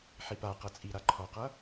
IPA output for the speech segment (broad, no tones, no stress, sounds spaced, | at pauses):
ħ i p a q ʌ t͡sʼ i ɾ a ǃʰ ɔ q ʌ